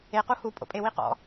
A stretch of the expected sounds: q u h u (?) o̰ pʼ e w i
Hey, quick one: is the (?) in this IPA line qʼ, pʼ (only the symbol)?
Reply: pʼ